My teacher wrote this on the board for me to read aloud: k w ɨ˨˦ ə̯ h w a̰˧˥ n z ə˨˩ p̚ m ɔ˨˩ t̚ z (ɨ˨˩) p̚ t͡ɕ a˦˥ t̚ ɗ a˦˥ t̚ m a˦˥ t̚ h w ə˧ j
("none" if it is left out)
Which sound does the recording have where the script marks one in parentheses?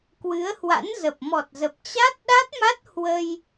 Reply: ə˨˩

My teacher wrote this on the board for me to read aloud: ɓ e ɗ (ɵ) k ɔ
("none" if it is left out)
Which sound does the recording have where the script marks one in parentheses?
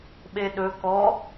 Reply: ɵ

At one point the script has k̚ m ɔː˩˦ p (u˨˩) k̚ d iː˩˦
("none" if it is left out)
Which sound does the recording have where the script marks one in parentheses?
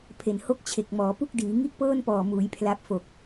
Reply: u˥˩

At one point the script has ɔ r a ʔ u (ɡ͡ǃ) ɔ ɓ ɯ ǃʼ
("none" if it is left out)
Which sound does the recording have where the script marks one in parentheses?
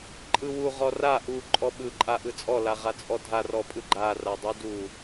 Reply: ǃʼ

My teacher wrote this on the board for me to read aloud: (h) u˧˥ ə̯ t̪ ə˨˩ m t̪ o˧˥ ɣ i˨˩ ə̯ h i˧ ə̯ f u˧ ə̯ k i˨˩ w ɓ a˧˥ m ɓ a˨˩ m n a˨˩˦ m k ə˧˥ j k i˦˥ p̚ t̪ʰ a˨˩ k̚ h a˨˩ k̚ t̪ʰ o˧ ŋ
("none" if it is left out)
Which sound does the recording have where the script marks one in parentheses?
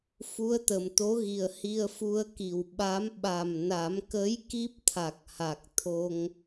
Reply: f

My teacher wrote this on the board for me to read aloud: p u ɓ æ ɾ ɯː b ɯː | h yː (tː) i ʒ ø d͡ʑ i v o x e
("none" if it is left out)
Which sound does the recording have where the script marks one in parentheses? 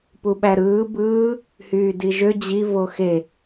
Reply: d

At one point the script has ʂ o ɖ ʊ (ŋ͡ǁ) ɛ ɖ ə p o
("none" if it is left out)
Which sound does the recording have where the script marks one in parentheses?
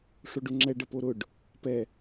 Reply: ŋ͡ǁ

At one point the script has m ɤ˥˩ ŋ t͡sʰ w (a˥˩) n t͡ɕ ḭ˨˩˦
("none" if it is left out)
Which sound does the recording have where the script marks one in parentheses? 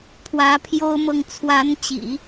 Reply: a˧˥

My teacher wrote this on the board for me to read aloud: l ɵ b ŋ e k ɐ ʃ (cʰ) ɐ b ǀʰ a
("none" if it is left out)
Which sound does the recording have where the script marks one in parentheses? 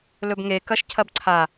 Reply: cʰ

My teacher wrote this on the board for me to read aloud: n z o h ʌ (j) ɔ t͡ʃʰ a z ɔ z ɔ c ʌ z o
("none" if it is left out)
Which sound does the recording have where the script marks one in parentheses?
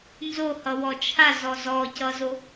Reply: w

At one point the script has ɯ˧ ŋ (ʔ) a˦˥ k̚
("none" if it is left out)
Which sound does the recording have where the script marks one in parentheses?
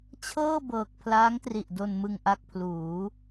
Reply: ʔ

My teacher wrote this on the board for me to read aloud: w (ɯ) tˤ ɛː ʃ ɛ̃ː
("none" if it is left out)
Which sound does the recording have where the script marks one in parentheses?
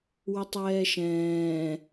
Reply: ə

